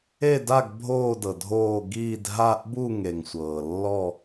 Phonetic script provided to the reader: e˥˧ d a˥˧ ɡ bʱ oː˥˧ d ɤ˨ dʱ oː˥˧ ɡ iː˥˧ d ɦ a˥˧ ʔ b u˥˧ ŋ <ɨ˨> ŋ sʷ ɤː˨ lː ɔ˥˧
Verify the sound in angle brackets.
incorrect: e˨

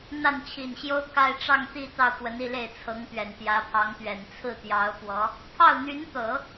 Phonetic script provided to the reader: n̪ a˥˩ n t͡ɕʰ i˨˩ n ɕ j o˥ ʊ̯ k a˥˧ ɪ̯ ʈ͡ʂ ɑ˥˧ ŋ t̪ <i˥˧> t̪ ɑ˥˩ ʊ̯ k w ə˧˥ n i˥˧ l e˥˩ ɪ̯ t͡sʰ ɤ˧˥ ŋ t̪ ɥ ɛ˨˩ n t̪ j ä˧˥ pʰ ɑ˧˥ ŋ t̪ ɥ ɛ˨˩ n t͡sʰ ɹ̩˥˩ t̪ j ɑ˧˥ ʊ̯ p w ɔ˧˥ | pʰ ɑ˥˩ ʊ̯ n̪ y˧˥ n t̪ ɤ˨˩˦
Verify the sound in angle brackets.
correct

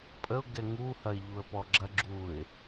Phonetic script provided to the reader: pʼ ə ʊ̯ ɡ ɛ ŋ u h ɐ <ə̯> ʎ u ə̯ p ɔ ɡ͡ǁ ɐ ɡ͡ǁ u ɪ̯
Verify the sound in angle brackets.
incorrect: ɪ̯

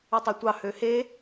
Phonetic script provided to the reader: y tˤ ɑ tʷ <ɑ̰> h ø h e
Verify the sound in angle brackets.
incorrect: ɑ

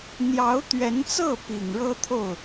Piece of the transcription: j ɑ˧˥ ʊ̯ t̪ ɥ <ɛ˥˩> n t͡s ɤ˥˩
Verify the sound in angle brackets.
incorrect: ɛ˧˥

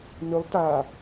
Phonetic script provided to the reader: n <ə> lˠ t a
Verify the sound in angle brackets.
incorrect: ʏ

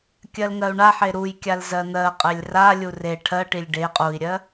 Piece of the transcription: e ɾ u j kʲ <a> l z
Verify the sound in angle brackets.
correct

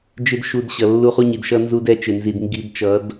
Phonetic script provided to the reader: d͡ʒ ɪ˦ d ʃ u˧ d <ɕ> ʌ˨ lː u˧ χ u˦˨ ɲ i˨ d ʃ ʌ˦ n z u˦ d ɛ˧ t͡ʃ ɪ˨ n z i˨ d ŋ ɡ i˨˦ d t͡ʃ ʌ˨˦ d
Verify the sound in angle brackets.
correct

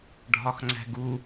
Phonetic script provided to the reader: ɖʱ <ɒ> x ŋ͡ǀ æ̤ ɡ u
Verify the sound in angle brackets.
correct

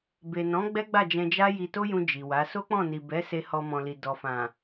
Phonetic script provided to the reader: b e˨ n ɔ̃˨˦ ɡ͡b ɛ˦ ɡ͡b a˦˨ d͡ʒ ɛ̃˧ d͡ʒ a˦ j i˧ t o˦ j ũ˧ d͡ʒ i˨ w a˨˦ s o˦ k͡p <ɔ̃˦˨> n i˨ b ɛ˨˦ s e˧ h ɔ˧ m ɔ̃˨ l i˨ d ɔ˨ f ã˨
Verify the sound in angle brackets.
correct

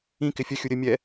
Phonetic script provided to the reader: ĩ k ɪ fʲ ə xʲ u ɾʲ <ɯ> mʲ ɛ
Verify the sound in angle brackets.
incorrect: ə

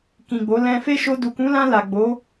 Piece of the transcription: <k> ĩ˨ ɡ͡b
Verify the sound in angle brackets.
correct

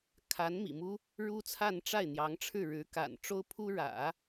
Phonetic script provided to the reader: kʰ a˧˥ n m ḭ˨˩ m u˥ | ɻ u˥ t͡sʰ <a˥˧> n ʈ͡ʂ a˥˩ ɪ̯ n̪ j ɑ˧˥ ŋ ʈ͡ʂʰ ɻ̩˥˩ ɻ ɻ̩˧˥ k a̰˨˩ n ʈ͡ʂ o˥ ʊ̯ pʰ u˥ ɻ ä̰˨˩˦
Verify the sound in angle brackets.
correct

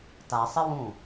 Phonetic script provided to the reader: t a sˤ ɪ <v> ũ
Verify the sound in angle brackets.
incorrect: w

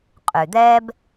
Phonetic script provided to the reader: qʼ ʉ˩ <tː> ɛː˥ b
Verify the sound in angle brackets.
incorrect: d̪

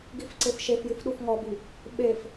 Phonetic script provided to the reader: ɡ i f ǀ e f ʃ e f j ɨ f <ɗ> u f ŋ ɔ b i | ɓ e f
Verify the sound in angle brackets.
correct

